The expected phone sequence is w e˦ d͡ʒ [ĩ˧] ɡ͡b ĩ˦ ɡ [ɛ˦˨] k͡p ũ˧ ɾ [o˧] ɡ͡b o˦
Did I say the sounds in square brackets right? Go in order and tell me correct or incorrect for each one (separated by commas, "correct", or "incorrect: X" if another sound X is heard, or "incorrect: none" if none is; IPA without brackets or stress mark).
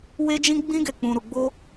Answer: incorrect: ĩ˦, correct, incorrect: u˧